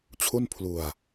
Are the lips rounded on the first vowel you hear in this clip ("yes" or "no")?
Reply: yes